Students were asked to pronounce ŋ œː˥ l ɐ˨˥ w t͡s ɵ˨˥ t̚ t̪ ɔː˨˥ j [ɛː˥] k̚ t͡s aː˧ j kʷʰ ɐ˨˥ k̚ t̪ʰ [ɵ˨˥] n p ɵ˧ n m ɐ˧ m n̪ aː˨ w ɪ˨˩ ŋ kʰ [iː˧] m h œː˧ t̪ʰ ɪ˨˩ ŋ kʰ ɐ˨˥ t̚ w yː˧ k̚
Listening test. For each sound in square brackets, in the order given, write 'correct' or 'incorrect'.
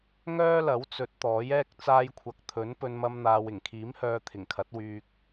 correct, correct, incorrect: iː˨˥

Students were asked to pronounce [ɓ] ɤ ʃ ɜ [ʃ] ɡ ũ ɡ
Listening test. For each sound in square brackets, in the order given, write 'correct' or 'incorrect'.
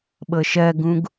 correct, incorrect: none

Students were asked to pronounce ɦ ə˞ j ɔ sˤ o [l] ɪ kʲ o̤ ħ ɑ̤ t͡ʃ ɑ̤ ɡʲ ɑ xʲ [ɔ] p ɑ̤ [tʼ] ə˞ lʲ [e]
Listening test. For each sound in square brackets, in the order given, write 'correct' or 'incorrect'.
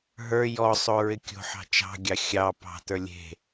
incorrect: ɹ, incorrect: ɑ, incorrect: t, incorrect: e̤

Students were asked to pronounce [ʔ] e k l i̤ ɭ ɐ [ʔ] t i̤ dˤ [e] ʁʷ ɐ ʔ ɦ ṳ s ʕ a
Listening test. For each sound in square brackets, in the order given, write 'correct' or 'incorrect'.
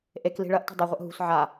correct, correct, incorrect: ɨ

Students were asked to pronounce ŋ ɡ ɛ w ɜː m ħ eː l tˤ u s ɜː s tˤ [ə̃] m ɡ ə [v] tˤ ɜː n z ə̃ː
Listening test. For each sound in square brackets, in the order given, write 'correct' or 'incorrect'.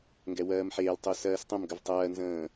correct, correct

